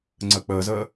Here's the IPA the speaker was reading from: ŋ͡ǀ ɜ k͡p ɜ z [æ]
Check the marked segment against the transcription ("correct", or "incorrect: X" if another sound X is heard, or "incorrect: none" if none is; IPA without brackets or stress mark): incorrect: ɜ